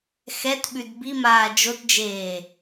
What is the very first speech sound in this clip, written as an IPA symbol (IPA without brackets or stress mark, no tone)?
x